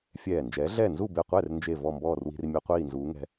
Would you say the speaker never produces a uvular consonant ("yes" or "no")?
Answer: no